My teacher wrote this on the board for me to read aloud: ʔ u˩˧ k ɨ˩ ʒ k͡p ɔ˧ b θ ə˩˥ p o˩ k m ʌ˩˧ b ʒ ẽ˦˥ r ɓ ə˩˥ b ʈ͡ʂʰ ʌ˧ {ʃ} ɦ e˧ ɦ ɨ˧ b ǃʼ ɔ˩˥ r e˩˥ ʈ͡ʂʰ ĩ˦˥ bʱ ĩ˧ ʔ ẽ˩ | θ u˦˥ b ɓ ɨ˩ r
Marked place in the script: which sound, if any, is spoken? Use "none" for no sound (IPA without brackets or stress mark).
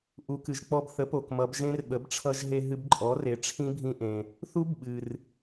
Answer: ʒ